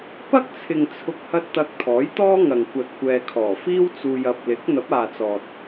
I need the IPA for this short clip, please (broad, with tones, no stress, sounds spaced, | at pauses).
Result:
p ɐ˥ k̚ t͡sʰ ɪ˨ ŋ t͡sʰ ʊ˨ k̚ h ɐ˧ t̚ t̪ ɐ˧ k̚ t̪ʰ ɔː˨˥ j t̪ ɔː˥ ŋ ɐ˨ ŋ kʷ ɐ˧ t̚ kʷ ɛː˧ kʰ ɔː˨˩ f iː˥ w t͡s uː˧ j ɐ˨ p̚ l ɪ˨˥ k̚ n̪ ɐ˨˥ p̚ aː˨ t͡s ɔː˨ t̚